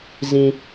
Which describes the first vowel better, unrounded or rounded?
unrounded